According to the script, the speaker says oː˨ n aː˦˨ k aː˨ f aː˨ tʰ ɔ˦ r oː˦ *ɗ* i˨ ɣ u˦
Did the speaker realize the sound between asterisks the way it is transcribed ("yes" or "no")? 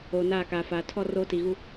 no